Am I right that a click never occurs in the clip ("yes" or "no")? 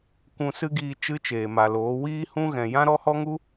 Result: yes